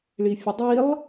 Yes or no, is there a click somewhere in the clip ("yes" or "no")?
no